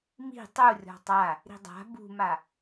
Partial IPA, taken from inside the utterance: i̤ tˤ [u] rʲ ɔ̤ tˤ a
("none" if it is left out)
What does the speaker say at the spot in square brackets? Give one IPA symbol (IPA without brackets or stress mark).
u